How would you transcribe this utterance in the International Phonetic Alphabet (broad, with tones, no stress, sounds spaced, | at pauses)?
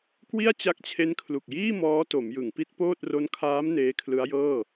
k w i˥˩ a̯ t͡ɕ a˦˥ k̚ t͡ɕʰ e˦˥ n kʰ l u˨˩ k̚ j iː˥˩ m ɔː˦˥ t o˩˦ m j ɯ˩˦ ŋ p i˦˥ t̚ p oː˥˩ t̚ r o˦˥ n kʰ aː˦˥ m n eː˦˥ kʰ l ɯ˦˥ a̯ j ɤː˥˩